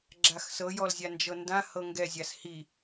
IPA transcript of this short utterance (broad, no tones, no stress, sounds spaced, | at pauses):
ɡ͡ǁ a x s ɤ j ɔ l zʲ a n d͡ʒ ɤ n d ã h ɤ ŋ ɡ ɛ zʲ a s h i